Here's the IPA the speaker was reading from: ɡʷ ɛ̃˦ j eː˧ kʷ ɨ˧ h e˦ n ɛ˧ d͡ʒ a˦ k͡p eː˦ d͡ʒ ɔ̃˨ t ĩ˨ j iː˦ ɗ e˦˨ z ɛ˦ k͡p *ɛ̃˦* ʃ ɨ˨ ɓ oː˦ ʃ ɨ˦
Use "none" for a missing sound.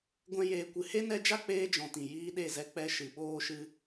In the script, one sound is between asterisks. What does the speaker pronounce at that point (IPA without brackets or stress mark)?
ɛ˦